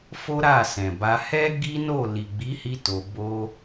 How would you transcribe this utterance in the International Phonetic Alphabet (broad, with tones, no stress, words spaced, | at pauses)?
fo˦ɾa˦˨sɛ̃˨ba˧ hɛ˦ ɡi˦no˦˨ li˨ɡ͡bi˨˦hi˧ to˧bo˦